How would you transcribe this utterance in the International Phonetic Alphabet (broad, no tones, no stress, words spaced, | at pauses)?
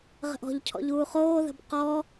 ʁə̤ʔɔ̤ʎcʰɔ̰ʎ uːχoːðə̤b qɔː